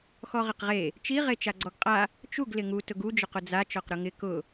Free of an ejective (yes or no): no